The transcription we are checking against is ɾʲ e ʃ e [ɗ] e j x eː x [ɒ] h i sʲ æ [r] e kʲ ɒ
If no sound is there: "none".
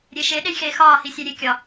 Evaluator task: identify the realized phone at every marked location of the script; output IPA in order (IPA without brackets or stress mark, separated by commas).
ɗ, ɒː, ɾʲ